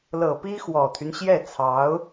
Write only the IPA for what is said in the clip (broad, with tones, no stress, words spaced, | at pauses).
lɤ˨˩ pi˥xwɔ˨˩t̪ʰy˦nɕjɛ˥˩ t͡sʰɑ˧˥ʊ̯